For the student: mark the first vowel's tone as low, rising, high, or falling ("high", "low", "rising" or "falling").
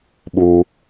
low